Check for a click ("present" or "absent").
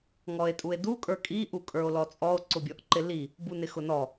present